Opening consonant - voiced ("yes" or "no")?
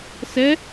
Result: no